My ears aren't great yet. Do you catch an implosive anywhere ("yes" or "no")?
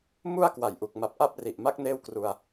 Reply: no